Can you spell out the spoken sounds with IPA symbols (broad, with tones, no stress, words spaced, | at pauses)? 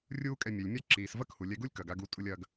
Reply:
rʲuː˥kʼɛ˧ mʲɛ˩lʲmʲa˥ǁiː˩s vɐ˥khu˩lʲɛ˧ɡu˥lʲ kɐ˩ɡ a˧ɡu˧ tʼu˧lʲɐː˧ɡ